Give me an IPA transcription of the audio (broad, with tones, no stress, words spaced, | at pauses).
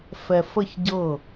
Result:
fɛ˨fə˦˨çɟɤ˦˨